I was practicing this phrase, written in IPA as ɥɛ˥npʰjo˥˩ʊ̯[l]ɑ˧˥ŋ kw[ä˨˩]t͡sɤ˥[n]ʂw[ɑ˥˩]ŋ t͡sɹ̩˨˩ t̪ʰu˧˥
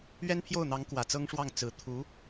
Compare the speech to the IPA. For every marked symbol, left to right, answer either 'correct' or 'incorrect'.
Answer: incorrect: n̪, correct, incorrect: ŋ, correct

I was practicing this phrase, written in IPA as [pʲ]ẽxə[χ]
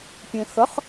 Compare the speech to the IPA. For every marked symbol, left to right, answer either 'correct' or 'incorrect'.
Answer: correct, correct

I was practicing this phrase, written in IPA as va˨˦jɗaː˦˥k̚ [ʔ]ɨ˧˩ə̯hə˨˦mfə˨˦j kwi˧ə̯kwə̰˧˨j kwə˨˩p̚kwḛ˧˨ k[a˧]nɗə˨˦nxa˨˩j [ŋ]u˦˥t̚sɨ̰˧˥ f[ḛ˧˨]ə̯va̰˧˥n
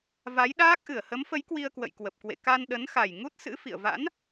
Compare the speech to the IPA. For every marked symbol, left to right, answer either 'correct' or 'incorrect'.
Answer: correct, correct, correct, incorrect: ḭ˧˨

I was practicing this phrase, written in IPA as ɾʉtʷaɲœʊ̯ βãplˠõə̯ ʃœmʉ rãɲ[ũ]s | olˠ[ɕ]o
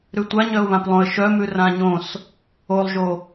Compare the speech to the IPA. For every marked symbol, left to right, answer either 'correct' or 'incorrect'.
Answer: incorrect: õ, incorrect: ʒ

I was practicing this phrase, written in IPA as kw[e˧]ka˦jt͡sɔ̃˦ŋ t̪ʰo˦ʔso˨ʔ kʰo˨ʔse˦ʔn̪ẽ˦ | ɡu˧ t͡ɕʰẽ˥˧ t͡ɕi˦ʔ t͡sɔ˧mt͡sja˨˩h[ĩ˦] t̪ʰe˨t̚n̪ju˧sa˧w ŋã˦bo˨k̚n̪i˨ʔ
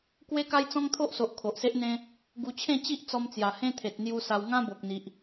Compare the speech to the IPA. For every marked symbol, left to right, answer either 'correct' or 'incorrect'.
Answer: incorrect: e˦, incorrect: ẽ˦

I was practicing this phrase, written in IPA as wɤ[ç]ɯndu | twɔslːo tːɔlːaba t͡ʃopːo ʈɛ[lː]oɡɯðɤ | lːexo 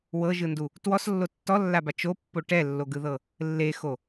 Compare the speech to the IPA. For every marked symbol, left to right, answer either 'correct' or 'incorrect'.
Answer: incorrect: ʒ, correct

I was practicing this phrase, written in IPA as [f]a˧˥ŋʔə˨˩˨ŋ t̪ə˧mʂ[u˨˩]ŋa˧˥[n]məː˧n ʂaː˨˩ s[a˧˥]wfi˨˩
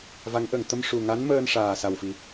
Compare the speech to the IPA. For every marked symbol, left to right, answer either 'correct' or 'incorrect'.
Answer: incorrect: v, correct, correct, incorrect: a˨˩

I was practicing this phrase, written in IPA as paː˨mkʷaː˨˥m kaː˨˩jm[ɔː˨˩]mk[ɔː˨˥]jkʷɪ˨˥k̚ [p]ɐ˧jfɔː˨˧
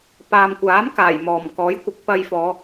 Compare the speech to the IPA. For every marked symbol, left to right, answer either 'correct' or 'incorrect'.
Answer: correct, correct, correct

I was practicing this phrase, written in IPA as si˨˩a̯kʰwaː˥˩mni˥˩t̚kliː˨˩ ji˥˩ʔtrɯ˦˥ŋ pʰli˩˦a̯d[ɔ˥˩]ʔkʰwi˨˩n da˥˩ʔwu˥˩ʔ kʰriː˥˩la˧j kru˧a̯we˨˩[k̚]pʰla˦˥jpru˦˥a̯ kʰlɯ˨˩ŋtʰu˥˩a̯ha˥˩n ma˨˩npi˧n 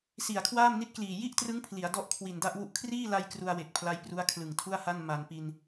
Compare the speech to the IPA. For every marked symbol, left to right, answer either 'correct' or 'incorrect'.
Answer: correct, correct

